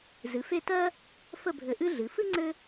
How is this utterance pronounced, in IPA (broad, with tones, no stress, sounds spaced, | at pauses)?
z ɨ˩˧ f e˥˧ t ɜ˥ | f ə˥˧ bʱ ɘ˧˩ ʔ ɨ˥ ɮ ɨ˩˧ f ɨ˥ ŋ͡ǀ ɘ˥